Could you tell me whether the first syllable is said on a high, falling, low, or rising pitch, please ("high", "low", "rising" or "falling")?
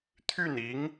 falling